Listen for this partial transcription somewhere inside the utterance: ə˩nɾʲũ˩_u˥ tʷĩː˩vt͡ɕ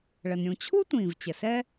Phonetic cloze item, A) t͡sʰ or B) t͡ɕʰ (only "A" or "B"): B